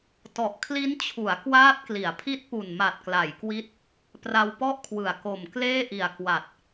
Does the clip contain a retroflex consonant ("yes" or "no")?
no